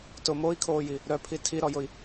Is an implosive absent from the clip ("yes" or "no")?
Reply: yes